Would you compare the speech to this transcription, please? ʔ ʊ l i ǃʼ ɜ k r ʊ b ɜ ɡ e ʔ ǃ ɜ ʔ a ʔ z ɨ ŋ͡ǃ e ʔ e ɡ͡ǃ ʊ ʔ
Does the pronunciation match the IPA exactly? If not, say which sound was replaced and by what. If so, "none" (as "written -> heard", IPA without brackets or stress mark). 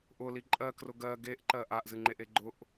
b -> ɡ